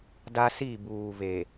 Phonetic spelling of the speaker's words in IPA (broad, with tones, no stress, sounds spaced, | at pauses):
d a˦ s i˦˨ b uː˨ v e˨